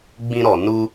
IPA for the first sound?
ɡ͡b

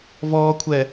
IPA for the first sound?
v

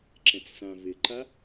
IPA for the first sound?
ǁ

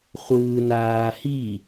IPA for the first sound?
χʷ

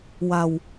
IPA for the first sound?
w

